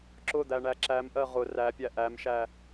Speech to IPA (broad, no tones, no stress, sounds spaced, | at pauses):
ǁ ʊ d̪ æ ɳ æ ǁ æ m ʔ ɜ ʁ ʊ r æ pʲ æ ʔ æ m ʃ æ